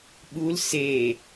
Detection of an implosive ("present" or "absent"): present